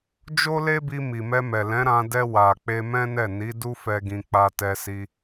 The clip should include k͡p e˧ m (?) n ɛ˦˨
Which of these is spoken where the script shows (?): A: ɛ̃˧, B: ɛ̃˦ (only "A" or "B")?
B